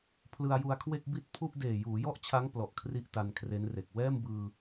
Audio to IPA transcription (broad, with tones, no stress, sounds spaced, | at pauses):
pʰ l ɯ˧ a̯ j u˧ a̯ kʰ w e˥˩ k̚ b i˥˩ t̚ pʰ u˥˩ ʔ d eː˨˩ j uː˩˦ j ɔ˥˩ ʔ t͡ɕʰ a˦˥ ŋ p l ɔ˨˩ ʔ kʰ r i˦˥ ʔ t a˧ n kʰ r e˦˥ n r e˨˩ k̚ w ɛː˥˩ m b ɯː˧